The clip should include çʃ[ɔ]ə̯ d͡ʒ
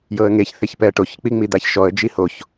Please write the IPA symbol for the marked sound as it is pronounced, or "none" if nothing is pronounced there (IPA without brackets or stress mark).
ɔ